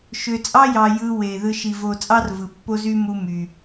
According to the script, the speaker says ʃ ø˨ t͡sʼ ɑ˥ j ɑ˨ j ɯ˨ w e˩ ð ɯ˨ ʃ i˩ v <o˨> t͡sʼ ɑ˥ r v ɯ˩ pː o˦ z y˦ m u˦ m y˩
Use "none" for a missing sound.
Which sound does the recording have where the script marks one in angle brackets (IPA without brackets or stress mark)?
o˨